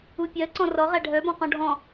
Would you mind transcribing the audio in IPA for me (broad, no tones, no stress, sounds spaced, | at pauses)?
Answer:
u pʲ ɜ ǀ ɔ̃ r ɔ ʁ æ ɖʱ œ b ɔ̃ q ɔ̃ ɖʱ ɔ̃